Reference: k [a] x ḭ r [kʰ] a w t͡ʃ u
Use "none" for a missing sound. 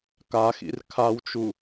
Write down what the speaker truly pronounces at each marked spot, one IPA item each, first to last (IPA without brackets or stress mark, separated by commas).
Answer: a, kʰ